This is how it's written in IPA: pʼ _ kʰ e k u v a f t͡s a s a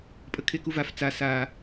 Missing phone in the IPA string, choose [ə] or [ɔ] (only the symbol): ə